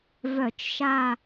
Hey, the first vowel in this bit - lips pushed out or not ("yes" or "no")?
yes